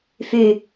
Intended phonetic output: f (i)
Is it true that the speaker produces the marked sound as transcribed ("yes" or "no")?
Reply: no